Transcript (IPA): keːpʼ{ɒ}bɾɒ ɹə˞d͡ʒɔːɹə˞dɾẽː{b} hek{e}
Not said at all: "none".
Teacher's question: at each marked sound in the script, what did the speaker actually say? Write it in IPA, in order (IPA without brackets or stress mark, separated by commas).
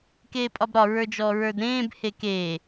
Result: ɒ, b, eː